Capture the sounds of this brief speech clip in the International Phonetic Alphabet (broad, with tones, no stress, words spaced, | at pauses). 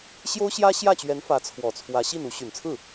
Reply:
ɕjo˥ʊ̯ɕjä˥ɕjä˥˩t͡ɕɥɛ˧˥n fä˧˥t͡sʰwɔ˨˩t͡sʰwä˧˥ ɕi˥˩nu˧˥ ɕy˨˩nt͡sʰɹ̩˥˩